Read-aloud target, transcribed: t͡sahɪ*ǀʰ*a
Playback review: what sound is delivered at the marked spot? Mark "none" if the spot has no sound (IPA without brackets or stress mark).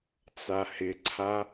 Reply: ǀʰ